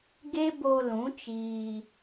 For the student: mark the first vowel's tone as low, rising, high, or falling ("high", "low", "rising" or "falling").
high